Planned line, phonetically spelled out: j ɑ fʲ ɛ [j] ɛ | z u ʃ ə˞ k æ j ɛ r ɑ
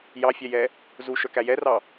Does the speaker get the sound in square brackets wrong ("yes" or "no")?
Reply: no